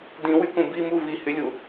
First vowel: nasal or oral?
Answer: nasal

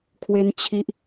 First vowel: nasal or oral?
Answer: oral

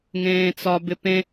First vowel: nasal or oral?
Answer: nasal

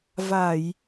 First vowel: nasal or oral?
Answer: oral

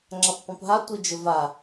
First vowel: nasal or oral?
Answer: oral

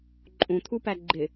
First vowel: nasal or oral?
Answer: nasal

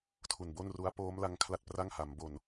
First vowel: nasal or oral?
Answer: oral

